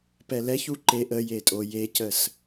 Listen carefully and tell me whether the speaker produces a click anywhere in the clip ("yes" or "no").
yes